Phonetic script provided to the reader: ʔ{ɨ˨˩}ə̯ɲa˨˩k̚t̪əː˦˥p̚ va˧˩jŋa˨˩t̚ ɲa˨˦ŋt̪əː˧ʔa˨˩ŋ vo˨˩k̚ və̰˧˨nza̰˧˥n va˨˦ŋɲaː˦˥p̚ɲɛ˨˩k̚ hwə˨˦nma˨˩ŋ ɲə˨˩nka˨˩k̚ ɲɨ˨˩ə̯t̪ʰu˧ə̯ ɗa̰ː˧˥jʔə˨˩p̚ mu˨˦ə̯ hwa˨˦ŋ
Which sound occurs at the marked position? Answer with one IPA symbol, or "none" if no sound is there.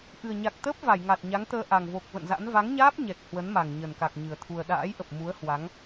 ɨ˨˩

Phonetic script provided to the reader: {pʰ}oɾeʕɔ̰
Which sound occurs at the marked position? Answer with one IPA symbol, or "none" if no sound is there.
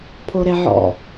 pʰ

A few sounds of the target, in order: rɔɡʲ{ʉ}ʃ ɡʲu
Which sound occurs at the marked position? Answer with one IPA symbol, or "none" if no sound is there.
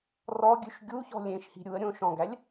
ʉ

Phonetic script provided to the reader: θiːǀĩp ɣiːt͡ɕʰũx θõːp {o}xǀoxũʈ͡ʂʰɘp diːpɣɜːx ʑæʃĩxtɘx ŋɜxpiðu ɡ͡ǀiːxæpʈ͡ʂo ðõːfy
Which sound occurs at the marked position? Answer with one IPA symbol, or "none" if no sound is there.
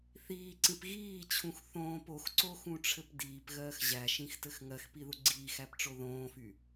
o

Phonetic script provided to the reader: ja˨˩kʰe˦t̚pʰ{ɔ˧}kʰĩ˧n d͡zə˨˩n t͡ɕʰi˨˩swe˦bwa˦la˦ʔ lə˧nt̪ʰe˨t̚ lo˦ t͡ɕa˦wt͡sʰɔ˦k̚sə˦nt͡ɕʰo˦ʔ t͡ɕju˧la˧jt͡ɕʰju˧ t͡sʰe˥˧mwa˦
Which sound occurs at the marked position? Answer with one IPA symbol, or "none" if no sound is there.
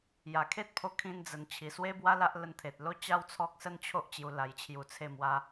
o˧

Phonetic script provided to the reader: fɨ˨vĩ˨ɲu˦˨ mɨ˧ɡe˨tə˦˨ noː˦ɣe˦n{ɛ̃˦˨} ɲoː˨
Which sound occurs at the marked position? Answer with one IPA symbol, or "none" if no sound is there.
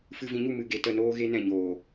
ɛ̃˦˨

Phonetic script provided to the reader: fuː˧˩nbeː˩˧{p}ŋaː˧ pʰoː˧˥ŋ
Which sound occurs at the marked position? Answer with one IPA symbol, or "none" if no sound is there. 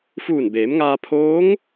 m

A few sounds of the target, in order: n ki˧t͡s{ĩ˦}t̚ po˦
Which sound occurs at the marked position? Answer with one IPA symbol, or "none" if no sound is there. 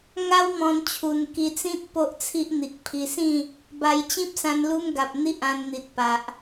ĩ˦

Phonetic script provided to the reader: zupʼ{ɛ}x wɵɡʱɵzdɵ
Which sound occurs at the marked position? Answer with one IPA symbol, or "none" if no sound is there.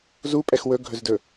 ɛ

